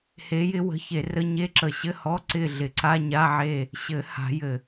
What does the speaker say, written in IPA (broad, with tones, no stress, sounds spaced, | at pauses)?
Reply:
h e˧˥ j ɪ˧˥ w ə̤˧˥ ç e˨˩˦ r ə˧˥˧ ɲ e˧˥ ǁ ə˨˩ ɕ ɘ˧˥˧ h ɔ˧˥˧ ǀ ɪ˦˨ ɮ ɪ˨˩˦ ǀ a˧˥˧ ɲ a˧˥˧ ʕ e˦˨ | ɕ ɘ˨˩˦ h a̤˨˩˦ j ɘ˨˩